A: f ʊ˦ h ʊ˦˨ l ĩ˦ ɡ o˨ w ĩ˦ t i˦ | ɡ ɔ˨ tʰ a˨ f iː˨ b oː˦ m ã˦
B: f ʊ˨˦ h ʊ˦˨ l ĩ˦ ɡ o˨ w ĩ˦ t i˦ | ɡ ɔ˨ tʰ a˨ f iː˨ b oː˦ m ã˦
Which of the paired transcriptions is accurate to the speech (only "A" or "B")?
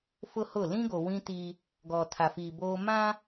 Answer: A